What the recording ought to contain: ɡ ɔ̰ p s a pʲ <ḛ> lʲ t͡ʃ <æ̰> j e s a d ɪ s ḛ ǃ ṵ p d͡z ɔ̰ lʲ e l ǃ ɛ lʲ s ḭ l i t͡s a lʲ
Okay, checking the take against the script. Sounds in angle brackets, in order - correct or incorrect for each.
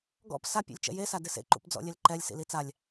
correct, incorrect: ɛ̰

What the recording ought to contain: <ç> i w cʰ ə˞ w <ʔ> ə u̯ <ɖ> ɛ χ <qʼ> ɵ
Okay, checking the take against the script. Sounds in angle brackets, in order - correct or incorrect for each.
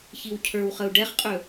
correct, incorrect: χ, correct, correct

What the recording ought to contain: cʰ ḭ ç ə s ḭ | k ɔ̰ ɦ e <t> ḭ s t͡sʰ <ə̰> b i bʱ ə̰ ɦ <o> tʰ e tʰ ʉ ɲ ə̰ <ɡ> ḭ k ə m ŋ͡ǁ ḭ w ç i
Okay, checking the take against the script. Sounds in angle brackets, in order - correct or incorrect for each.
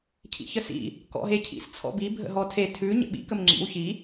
incorrect: cʰ, incorrect: ɔ̰, incorrect: ɔ, incorrect: ɓ

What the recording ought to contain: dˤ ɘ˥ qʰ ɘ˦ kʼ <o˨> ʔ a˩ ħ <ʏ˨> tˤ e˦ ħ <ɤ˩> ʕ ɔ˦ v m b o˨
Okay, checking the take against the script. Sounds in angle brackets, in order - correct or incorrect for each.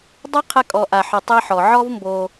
incorrect: ɔ˨, correct, incorrect: ɔ˩

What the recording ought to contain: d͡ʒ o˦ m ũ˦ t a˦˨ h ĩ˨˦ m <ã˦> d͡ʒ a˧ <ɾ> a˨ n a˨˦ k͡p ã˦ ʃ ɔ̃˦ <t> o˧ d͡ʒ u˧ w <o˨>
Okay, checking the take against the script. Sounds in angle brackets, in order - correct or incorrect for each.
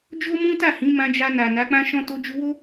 incorrect: ã˧, incorrect: n, correct, incorrect: o˦

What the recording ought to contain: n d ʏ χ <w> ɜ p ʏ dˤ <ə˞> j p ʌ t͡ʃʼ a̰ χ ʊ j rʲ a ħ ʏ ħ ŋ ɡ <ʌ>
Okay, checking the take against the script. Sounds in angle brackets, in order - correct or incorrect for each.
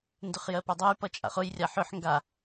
incorrect: j, incorrect: ʌ, incorrect: a

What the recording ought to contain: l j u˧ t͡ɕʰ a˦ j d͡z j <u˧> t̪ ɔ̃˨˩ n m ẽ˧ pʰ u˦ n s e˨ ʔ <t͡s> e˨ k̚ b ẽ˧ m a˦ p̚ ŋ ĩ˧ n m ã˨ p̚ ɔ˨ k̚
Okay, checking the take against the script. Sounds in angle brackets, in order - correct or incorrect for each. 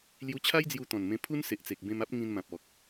correct, correct

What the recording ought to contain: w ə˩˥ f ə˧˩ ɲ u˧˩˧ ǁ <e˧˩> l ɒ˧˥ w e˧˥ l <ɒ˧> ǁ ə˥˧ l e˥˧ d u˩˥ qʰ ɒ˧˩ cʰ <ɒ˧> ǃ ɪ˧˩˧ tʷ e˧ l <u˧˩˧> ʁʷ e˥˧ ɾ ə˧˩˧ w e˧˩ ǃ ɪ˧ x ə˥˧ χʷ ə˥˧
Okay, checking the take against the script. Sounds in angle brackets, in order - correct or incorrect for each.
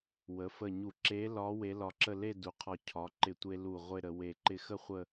incorrect: e˧˥, correct, incorrect: ɒ˩˥, incorrect: u˧˩

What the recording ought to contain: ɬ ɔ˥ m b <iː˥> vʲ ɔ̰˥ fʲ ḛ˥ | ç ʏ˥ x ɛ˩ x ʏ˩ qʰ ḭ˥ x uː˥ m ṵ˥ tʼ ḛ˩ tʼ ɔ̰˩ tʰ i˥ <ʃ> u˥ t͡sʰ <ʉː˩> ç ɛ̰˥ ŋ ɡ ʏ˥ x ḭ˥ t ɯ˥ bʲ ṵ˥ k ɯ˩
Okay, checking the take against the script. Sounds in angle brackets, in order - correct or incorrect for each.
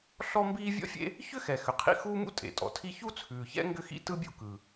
correct, incorrect: ç, correct

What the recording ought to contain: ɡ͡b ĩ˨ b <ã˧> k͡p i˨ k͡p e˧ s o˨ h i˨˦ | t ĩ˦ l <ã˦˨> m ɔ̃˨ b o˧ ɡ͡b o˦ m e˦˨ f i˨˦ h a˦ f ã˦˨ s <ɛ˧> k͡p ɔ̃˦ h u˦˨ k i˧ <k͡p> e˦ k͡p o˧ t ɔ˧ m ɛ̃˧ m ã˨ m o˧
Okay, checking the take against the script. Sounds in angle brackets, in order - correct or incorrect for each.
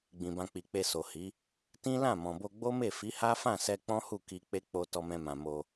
correct, correct, correct, correct

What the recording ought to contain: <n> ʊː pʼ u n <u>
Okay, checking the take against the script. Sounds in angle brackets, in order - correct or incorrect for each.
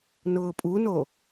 correct, incorrect: o

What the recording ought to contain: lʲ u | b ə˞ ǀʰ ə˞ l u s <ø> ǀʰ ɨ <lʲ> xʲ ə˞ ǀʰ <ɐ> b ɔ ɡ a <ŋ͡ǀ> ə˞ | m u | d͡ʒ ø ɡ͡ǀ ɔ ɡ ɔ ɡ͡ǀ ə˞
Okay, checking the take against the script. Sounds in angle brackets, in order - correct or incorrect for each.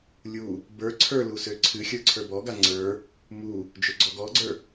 correct, incorrect: none, incorrect: ə˞, correct

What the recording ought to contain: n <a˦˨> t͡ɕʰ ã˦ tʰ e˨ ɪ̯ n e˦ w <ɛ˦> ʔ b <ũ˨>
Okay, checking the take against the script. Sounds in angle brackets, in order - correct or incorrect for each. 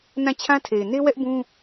incorrect: ã˦˨, correct, incorrect: ũ˦

